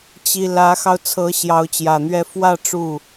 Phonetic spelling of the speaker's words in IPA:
t͡ɕi˥ lä˧˥xɑ˧ʊ̯t͡sʰɤ˧˥ ɕjɑ˧˥ʊ̯t͡ɕjä˨˩n̪ɥɛ˥˧ fwä˥˧ ʈ͡ʂu˥˩

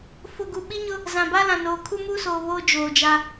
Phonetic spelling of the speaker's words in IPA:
fʊ˨ɡu˨ ɓi˦ɲʊ˦ | zã˨ba˦lã˨noː˨ kʰu˦muː˦soː˨ βoː˦d͡ʒoː˨d͡ʒa˦

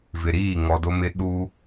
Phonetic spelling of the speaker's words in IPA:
vɪ˨ ɾiː˦˨ ŋɔ˨do˦mɪ˦ ɗu˦

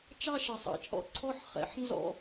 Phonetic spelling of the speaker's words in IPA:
t͡ʃɑ˥˧ʃɘ˩sˤɑ̰˩t͡ʃʼɔ̰˧˩ ǀʰɔ˥˧ħχɛ̰˨˦ħnzɔ̰˥˧

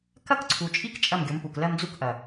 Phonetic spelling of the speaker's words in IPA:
kɐ˦kǀʰu˨t͡ʃʼi˦k t͡ʃʼɐ˦˨mɡʲo˨˦mpu˨k lɜ˦md͡zu˦kʔɐ˨

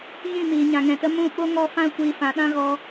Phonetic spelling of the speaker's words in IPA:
ɣĩ˦˨miː˨ ɲã˨ŋɛ̃˨tə˧ mũ˦˨ ɓo˦ŋɔ˦˨fã˦ kʷiː˧fã˨˦ɗã˦ɣɔ˧

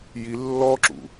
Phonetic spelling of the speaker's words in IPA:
ji lːɔǁṵ

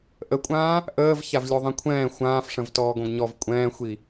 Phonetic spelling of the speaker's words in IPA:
ʔəkʷʼãː | ʔəːv çavlʲoðˤĩkʷʰɛ̃ː xʷãːfʂə̃v tɔːɡõɡɲɔv kʷʼɛ̃ːxʷi

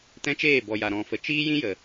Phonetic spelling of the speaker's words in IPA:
tɛ̃˦t͡ʃeː˦˨bɔ˨ja˨ ɾɔ̃˨fə˨ t͡ʃiː˦jĩ˦jə˨

